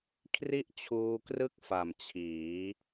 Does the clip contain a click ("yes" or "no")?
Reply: no